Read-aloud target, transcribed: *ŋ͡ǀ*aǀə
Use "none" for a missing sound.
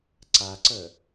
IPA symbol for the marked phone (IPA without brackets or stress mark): ǀ